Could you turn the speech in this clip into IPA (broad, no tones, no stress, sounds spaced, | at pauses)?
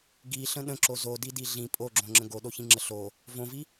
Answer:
ɡ i ɬ ə̃ ɗ ə̃ ǁ o z o d i d i ɮ ĩ pʼ o ɡ͡ǁ õ ŋ͡ǁ ə̃ ɡ o ɗ o ç ĩ ŋ͡ǁ ə ɬ o | v õ v i